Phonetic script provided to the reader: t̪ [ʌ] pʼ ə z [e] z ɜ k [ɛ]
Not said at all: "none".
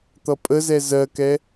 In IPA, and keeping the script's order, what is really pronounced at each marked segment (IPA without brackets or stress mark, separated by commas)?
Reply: ʌ, ɛ, ɛ